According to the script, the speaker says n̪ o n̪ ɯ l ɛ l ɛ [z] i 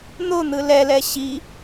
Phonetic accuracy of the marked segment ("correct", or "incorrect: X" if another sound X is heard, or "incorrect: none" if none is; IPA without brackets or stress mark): incorrect: ɕ